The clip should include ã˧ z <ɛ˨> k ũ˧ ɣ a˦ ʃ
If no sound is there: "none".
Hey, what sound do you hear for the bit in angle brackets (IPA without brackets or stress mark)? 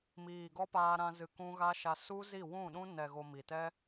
ɨ˨